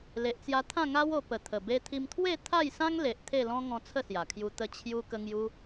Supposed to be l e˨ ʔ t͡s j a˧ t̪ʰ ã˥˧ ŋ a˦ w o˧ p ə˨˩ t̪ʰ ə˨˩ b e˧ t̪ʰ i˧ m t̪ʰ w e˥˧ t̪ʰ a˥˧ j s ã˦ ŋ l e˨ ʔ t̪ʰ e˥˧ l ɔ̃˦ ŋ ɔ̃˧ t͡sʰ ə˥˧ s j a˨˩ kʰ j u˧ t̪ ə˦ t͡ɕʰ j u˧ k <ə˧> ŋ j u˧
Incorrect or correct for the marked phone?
correct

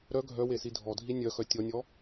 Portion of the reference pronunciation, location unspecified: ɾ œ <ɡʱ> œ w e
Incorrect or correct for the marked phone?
correct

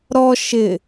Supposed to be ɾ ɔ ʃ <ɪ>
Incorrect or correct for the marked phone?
correct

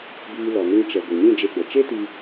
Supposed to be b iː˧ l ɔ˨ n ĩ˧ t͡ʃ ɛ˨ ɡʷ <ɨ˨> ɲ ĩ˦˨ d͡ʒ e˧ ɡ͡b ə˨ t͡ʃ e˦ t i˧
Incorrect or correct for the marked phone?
correct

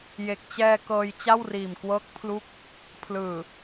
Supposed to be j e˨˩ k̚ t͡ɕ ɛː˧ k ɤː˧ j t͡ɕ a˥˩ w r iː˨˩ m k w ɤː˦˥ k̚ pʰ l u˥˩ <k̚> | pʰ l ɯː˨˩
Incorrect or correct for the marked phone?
correct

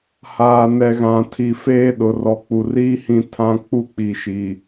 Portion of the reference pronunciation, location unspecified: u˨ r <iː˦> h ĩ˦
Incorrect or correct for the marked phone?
correct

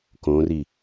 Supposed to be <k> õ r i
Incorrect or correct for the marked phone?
correct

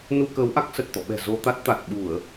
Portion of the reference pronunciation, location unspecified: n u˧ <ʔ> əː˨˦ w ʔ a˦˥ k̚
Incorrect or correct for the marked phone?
incorrect: k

